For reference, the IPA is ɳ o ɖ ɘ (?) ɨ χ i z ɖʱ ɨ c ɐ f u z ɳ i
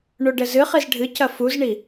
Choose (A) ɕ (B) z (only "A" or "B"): B